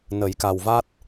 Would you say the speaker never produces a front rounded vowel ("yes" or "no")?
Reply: yes